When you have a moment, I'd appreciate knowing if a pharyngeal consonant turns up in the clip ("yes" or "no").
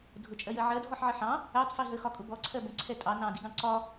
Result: yes